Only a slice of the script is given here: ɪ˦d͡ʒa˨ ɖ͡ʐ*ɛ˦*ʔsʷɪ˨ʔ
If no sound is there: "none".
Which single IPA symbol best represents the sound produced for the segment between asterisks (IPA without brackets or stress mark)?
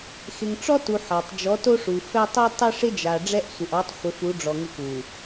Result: ɛ˦